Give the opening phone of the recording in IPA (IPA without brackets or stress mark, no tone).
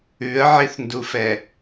ʉ